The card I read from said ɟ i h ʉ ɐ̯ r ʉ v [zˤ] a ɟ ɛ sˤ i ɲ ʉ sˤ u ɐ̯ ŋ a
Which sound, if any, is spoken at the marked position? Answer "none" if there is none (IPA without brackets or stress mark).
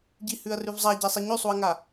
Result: zˤ